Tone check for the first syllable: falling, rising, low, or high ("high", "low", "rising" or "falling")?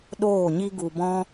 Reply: falling